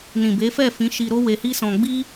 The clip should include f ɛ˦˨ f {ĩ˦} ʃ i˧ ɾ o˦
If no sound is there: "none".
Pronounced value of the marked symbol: ĩ˨˦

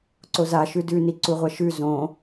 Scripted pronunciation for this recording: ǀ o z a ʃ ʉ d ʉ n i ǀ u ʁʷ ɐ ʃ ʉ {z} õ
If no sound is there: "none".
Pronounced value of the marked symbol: z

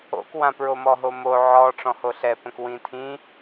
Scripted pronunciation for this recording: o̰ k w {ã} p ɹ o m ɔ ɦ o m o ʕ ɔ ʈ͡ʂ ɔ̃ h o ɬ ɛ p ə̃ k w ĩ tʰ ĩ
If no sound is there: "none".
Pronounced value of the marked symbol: ã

